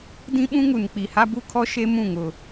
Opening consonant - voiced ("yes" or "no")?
yes